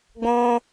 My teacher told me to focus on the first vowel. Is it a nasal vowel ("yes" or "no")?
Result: yes